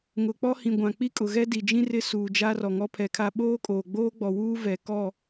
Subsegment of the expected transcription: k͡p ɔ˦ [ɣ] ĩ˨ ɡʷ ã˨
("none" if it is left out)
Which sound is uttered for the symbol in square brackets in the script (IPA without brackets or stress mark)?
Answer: h